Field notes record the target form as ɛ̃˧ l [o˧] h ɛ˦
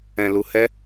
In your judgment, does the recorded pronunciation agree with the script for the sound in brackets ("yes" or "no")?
no